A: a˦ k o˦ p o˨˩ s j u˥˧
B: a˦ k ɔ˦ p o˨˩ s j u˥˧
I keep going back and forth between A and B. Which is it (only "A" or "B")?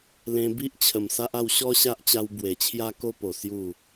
A